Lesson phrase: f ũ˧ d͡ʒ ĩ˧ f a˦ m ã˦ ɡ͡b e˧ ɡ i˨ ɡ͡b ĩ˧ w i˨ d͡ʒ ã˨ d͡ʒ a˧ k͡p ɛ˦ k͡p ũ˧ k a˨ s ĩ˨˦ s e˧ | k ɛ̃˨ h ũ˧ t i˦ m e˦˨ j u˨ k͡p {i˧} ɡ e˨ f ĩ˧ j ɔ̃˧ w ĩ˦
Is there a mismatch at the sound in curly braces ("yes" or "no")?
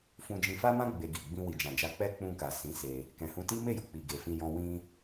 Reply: yes